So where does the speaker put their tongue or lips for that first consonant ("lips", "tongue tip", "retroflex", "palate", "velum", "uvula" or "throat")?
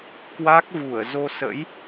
velum